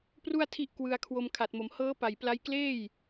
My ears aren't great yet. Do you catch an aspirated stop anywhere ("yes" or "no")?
yes